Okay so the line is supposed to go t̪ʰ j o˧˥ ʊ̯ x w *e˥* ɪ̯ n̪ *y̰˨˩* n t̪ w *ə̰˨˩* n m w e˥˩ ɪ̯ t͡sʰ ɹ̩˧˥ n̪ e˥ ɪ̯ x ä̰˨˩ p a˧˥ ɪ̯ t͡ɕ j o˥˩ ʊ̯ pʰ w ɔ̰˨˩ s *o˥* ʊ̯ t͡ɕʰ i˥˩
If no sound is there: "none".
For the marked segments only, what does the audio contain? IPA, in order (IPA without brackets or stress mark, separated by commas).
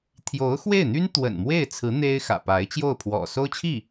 e˥˩, y˥, ə̰˨˩, o˥